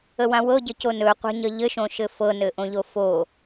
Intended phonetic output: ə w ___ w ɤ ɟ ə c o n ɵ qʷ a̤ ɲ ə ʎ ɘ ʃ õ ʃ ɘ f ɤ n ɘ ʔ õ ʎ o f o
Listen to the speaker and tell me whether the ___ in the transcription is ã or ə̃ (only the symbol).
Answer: ã